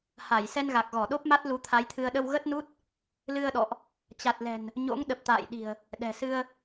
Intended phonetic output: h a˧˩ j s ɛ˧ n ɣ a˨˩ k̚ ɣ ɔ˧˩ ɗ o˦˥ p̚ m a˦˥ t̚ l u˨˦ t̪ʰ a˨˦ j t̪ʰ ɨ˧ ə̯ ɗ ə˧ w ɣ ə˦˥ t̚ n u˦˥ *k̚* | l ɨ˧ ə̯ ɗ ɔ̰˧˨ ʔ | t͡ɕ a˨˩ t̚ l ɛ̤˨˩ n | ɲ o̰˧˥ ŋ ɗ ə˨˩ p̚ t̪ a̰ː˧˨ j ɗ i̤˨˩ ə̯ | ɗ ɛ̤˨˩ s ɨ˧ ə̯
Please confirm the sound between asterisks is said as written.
no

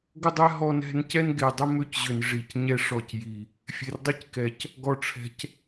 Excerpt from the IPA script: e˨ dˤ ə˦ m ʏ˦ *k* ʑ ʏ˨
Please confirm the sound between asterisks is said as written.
no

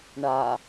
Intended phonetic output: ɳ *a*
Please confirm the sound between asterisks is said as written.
yes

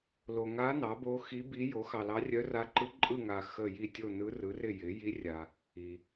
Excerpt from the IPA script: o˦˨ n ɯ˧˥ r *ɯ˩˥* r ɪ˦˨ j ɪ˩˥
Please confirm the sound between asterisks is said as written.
yes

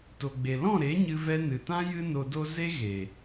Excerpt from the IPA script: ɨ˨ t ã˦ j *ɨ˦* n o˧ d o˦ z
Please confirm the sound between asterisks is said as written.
yes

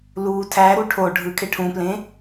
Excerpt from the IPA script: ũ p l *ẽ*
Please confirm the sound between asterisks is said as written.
yes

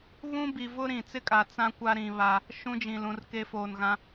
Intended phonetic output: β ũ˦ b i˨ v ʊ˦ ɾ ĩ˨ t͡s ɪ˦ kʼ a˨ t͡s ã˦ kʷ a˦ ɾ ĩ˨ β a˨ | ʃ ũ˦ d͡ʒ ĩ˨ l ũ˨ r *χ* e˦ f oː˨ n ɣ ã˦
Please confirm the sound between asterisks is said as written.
no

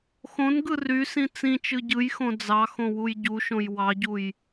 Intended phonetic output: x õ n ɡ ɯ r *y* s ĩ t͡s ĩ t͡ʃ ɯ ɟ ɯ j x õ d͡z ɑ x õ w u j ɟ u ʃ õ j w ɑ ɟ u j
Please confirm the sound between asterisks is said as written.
yes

